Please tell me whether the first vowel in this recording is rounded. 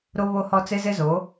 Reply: yes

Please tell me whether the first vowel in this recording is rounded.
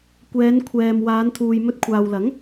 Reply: no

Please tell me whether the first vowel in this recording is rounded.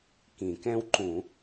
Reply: no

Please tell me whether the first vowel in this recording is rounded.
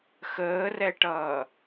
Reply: no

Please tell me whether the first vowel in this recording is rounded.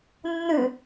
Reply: yes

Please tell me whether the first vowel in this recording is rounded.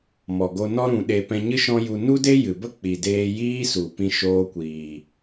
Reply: yes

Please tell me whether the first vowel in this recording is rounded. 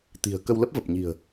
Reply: no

